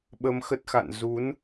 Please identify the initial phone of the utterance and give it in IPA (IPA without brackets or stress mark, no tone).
ɓ